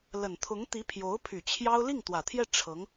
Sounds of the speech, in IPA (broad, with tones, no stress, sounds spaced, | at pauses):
l ə˨˩ n t̪ʰ ʊ˧˥ ŋ t̪ i˧˥ pʰ j o˧˥ ʊ̯ pʰ y˨˩ t͡ɕʰ j ɑ˥ ʊ̯ l i˥˩ ŋ t̪ w ä˨˩ t̪ʰ j ɛ˥˩ ʈ͡ʂʰ ɤ˧˥ ŋ